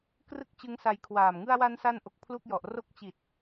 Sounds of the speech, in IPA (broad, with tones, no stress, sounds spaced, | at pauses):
k r ɯ˥˩ k̚ t͡ɕ ɯ˦˥ ŋ s a˧ j kʰ w aː˨˩ m ŋ ɯ˧ a̯ w a˧ n s a˧ n ʔ o˨˩ k̚ pʰ l u˥˩ k̚ j ɔ˨˩ ʔ r o˦˥ k̚ t͡ɕ i˨˩ t̚